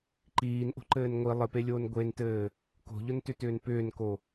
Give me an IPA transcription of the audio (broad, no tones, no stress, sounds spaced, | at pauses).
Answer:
ǃ iː n ʔ o̤ ǃ ɘː n ŋʷ i lˠ ɘ p e lʲ oː n ɡʷ e n t ɘː | k o̤ ʎ ʊ n t ʏ t ʏː n p ʏː n k o